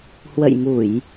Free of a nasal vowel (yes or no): yes